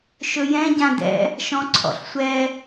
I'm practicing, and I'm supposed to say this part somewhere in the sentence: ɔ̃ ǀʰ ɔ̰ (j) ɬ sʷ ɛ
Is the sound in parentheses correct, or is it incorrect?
incorrect